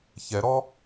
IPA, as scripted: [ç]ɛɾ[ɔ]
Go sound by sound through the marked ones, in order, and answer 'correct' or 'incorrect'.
correct, correct

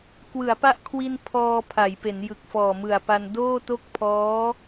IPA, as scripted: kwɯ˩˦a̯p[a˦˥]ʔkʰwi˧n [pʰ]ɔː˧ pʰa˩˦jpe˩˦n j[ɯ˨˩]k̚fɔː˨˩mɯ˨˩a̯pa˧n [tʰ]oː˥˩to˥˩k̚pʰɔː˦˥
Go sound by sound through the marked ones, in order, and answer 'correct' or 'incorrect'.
correct, correct, correct, incorrect: d

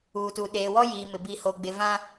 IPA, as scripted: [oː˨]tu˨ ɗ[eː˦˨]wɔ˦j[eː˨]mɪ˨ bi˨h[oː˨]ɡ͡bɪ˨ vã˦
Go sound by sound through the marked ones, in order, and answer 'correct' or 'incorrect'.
incorrect: uː˨, incorrect: eː˨, incorrect: iː˨, incorrect: o˨

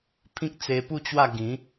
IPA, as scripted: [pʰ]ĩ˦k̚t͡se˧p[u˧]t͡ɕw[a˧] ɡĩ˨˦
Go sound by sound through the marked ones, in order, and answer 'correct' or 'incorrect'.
correct, incorrect: u˥˧, incorrect: a˥˧

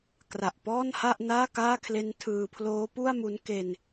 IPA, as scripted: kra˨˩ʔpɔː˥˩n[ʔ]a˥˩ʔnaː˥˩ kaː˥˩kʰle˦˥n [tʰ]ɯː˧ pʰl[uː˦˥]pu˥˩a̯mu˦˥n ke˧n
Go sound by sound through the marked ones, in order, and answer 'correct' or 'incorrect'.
incorrect: h, correct, incorrect: oː˦˥

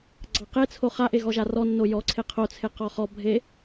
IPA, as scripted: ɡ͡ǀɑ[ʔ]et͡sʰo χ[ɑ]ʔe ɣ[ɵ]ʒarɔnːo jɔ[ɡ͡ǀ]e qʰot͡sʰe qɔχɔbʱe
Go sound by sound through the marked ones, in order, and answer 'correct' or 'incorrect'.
incorrect: q, incorrect: a, incorrect: ɔ, incorrect: ǀʰ

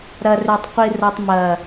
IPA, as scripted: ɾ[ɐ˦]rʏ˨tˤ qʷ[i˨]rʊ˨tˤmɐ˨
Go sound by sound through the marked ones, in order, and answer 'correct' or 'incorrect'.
incorrect: ɐ˨, correct

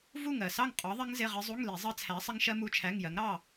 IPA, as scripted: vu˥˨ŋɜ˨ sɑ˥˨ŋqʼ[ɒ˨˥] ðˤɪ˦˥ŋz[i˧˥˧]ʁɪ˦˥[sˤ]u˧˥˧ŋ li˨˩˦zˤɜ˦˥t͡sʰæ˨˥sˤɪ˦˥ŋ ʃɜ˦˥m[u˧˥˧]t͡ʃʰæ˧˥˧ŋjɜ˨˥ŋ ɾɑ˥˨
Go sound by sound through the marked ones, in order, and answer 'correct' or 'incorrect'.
correct, incorrect: ɪ˧˥˧, incorrect: zˤ, correct

